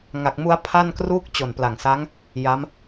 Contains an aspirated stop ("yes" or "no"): yes